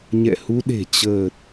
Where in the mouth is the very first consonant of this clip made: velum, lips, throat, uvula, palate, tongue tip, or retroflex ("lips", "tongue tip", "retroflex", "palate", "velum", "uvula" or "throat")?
palate